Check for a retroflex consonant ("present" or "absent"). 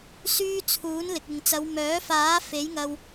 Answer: absent